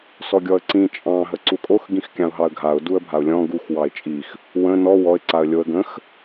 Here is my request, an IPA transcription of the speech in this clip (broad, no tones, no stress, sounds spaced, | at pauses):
s ɔ ɡʲ ɔ ə̯ ǀ ĩ t͡ʃʼ ɑ̃ ɦ ə ǀ u kʼ o x ɡ ĩ x kʲ ɑ̃ ʊ̯ ɦ ɑ ə̯ ɡʱ a ʊ̯ d u ə̯ bʱ a ʊ̯ lʲ ɔ̃ ɡ u x w ɑ ɪ̯ t͡ʃʼ i x | w ə̃ n ɔ w ɔ ɪ̯ ǀ a ə̯ lʲ o ə̯ ɡ ə̃ x